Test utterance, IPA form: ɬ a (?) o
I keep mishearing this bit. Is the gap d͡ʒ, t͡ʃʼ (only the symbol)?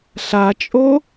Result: t͡ʃʼ